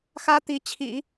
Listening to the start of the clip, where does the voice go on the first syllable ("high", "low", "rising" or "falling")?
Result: high